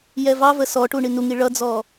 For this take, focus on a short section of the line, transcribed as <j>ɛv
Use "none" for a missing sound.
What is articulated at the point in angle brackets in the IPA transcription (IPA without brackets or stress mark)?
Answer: j